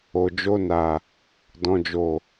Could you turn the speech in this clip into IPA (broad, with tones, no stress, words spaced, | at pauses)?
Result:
o˨d͡ʒo˧na˨ | dɔ̃˨d͡ʒo˨